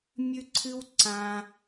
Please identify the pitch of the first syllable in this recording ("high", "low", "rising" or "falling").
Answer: high